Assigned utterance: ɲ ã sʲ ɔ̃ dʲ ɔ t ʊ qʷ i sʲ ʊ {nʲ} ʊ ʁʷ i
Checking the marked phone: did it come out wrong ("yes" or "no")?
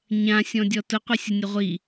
no